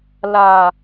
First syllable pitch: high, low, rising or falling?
low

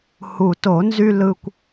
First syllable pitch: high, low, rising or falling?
low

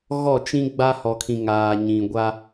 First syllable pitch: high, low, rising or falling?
falling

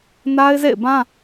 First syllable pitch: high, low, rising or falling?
high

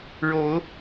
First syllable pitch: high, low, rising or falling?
rising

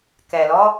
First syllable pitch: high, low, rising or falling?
low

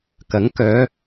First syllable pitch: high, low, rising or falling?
rising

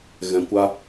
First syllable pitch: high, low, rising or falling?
low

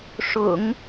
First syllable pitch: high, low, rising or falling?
low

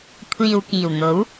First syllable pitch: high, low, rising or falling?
low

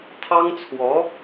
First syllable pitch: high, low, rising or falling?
high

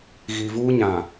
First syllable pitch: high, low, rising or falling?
low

